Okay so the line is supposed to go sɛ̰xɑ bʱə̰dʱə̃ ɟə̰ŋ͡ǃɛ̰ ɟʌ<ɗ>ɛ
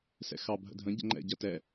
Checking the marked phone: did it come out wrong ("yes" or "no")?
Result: yes